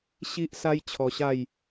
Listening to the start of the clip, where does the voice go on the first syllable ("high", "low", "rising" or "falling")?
high